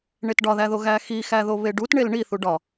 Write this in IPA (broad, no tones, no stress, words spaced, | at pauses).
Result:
ɳetɖɒðæðo ɣæxixæ ðoβeɖut ɳelɳiθu ɖɒ